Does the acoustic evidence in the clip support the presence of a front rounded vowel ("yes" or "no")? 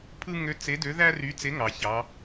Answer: yes